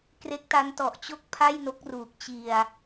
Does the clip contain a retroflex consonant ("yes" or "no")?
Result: no